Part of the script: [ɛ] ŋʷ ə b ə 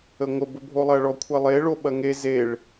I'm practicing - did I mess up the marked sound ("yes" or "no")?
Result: yes